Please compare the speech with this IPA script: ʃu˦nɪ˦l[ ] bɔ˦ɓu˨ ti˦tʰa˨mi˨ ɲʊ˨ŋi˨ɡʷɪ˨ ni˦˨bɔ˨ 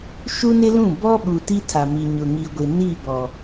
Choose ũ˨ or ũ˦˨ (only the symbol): ũ˦˨